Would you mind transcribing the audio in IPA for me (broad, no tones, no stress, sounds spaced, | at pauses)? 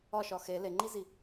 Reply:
ɒ ʃ ɒ x e l e ŋ͡ǃ i z i